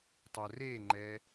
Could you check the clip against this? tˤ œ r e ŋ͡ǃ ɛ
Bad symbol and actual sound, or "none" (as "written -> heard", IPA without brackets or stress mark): none